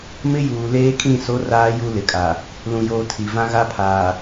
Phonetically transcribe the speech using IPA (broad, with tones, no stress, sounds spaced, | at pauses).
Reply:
m ɪ˦ j uː˨ l eː˦ kʼ ĩ˦˨ s o˦ r aː˦ j u˦ l ɪ˨ kʼ a˨ | l ũ˨ j oː˨ tʰ i˨ v ã˦ ɣ a˦ pʰ aː˨